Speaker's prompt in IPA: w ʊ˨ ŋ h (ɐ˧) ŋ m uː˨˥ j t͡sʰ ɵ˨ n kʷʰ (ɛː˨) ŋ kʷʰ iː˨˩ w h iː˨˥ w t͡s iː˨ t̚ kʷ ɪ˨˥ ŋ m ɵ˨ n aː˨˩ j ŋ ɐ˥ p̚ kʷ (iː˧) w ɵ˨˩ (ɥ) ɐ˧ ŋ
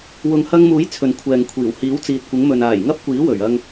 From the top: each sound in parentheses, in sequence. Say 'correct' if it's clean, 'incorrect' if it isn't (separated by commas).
correct, correct, incorrect, correct